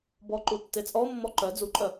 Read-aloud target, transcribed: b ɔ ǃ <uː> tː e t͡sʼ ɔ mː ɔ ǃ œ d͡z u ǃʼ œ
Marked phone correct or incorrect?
incorrect